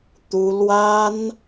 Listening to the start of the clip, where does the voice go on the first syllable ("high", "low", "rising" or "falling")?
high